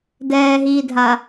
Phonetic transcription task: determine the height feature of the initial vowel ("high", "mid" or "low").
mid